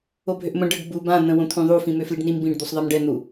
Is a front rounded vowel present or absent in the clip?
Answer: present